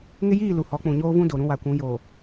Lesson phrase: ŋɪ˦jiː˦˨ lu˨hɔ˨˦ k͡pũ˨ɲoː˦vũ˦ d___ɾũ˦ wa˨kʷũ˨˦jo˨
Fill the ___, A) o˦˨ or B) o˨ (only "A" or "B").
B